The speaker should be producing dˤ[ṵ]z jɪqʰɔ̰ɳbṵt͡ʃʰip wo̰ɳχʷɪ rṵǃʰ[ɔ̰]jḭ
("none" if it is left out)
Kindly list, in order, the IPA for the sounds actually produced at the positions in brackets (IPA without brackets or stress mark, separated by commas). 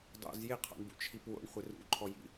o̰, ɔ